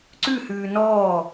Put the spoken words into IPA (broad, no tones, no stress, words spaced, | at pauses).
ǀʉhʉː nɔː